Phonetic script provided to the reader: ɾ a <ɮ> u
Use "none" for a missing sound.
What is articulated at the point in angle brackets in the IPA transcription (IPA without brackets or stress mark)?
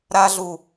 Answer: ɮ